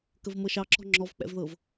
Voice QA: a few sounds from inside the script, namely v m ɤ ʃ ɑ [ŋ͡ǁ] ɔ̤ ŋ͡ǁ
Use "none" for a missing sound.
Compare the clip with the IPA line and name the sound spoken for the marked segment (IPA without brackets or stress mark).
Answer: ǁ